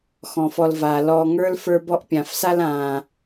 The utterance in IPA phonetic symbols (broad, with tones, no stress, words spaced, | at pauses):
xɔ̃˩fɔ˨lvaː˩ lɔː˨ŋə˞˥l fə˞˦bɔ˦ʔpʲã˨fsa˥l ãː˩